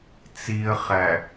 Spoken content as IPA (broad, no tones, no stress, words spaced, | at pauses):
t͡siə̯χæ